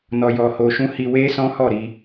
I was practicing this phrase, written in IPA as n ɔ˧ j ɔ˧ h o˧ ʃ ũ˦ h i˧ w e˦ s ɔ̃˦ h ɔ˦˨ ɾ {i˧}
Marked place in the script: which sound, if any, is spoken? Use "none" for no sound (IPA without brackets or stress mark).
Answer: i˧